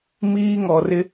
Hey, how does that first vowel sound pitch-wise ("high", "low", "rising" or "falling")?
high